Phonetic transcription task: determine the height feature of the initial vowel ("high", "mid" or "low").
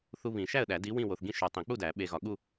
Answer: high